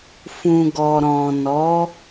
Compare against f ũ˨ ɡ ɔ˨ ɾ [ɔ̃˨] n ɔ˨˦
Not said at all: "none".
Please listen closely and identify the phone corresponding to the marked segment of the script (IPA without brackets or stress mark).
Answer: ɔ̃˨